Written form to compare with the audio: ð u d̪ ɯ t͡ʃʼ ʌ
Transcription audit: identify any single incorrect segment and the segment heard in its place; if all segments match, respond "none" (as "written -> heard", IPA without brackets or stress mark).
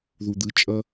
none